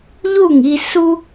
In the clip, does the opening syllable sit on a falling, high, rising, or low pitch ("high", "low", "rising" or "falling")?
falling